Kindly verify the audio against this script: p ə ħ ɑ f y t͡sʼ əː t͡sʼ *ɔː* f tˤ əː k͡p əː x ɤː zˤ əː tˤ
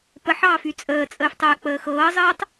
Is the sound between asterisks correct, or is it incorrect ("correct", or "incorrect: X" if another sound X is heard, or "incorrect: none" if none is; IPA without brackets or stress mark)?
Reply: incorrect: əː